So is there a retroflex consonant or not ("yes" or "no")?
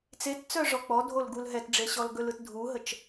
yes